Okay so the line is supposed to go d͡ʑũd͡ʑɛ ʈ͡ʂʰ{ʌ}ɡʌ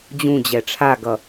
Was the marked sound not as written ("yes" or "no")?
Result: yes